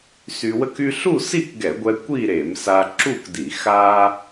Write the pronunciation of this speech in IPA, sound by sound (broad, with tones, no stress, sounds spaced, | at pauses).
s y˧ w ə˥ k y˥ ɬ u˥˧ s i˥˧ k ɡ ɛ˧˩˧ ɡʷ ɛ˧ kʷ i˥˧ ɾ e˧˩˧ m s a˧ ǁ u˥˧ k d i˧˩˧ x a˥